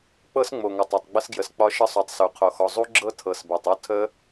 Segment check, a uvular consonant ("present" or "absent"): present